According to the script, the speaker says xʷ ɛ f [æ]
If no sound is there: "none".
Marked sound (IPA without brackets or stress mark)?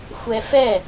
ɛ